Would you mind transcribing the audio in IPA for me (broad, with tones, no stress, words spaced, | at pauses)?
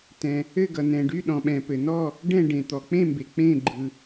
tɛ̃˩ | ɘ˦˨ɡʌ˩ nɛ̃˩ɖy˦˨ɗɔ̃˩ ɓɛ̃˩pɘ˩nɔ˦˨ | ɖɛ̃˦˨ ɖẽ˩t̪ɔ˩ k͡pẽ˦˨mbe˩ k͡pẽ˦˨ɡ͡ǃɯ˩